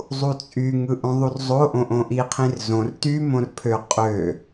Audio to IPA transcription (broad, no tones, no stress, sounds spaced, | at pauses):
zˤ u t͡sʼ y ŋ ɯ ʔ õ ðˤ u r zˤ o ʔ õ ʔ õ ʔ i qʰ ĩ r z õ r t y m õ r pʰ ø qʼ ø